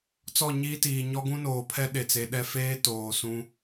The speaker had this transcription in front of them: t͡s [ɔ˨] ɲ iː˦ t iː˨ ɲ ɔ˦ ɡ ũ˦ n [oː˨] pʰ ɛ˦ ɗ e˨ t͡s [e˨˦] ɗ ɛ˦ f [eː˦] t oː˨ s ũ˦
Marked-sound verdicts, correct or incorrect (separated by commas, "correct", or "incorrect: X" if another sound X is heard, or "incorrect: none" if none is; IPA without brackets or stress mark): incorrect: ɔ˦˨, correct, correct, correct